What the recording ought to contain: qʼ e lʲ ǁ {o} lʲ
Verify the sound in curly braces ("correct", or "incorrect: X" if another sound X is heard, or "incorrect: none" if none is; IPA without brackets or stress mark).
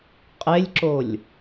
correct